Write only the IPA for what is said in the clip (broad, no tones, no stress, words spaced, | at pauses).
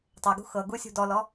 tˤɤɡṳ xɤɡusʲṳ dɔlɔ